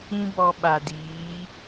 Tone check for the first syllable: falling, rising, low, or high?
high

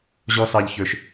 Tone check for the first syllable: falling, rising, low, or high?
high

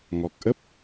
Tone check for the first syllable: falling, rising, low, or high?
low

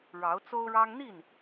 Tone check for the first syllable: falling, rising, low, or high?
rising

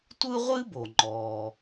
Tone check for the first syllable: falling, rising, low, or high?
high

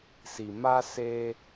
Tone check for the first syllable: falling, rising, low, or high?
low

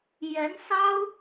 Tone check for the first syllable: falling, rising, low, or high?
rising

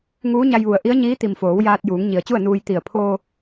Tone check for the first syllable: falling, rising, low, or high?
rising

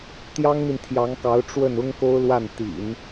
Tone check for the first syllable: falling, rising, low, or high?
high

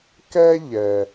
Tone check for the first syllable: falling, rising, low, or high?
high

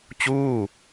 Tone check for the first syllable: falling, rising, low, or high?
falling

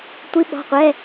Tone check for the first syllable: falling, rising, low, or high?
rising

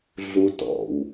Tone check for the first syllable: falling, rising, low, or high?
high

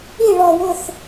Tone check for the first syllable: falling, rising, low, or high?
falling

